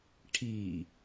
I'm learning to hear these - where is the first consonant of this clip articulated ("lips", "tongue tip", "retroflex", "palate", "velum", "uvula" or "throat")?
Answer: retroflex